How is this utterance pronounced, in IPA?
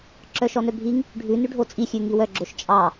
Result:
ǁœʃɔnœbʱiŋ | ɖʱʉ nʉɖʱot͡sʼi xʲʉŋiwœ ɡ͡ǁoʃt͡ʃʼɑ

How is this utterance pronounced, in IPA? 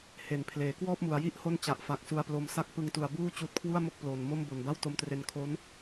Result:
he˩˦npʰleː˩˦ kwɔː˥˩p̚mu˩˦a̯ji˥˩ʔ ho˥˩nt͡ɕa˨˩ʔfa˨˩k̚ su˧a̯plo˧msa˥˩k̚ pɯ˧ŋtu˨˩a̯buː˥˩ t͡ɕuː˦˥t̚kʰwu˥˩a̯mo˥˩k̚ploː˨˩n mo˥˩mbo˨˩nba˥˩w to˧mtre˧nkʰo˦˥n

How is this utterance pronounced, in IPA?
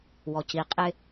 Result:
wɔci qʼɪ

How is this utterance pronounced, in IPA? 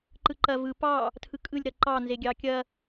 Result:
ǃɯǃɐ vɯ pɑ | tʰɯkʼɯlʲ ɾɐǃɑ nzeɡʲɑkʲɐ

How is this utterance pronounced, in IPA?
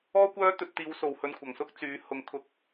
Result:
ɔː˥kʷœː˥ t̪ɵ˧t̚t̪iː˨˧w so˨whɵ˧nkʷʰɐ˨ŋsʊ˥k̚ t͡syː˨˧ hʊ˨˧ŋkʰʊ˧k̚

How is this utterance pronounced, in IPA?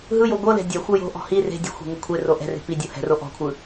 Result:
ɦɯjo ɡʷɤlɛ̤ dʲa xʷɤjo̤ʔɔ̤ hi re̤ dʲɔ̤xʷe̤ ŋokʷʰero ʔɛ̤re̤ pidʲo hɛ̤ro ʔɔ̤kʷʰɯ

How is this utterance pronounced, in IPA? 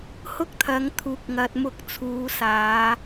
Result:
hʊ˥k̚t̪ʰɐ˨˧ŋt̪ʰuː˨k̚ ŋɐ˨t̚mʊ˧k̚ t͡sʰuː˨˧ saː˨˧

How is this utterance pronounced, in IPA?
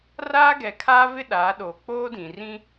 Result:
raː˦ɡɛ˨kʰaː˦ vɪ˦ɗaː˨˦ ɗoː˨k͡poː˦dĩ˨ rĩ˦

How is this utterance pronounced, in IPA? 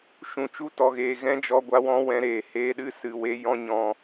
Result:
ʃũ˨t͡ʃu˧tɔ˨ɣeː˨ ɣɛ̃˦d͡ʒɔ˧ɡʷa˧wɔ̃˦ wɛ̃˧ɾeː˨ heː˧ɗɨ˦ sɨ˨we˧ jɔ̃˦ɲɔ̃˧

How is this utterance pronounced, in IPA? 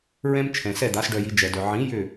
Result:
ɹɛ̃˥m t͡ʃʰɛ̃˩sɛ˥˩d̪a˩˥s ɖœ˧ji˩˥ d͡ʒɛ˩dœ˩ ʕĩ˩˥ jʏ˥˩

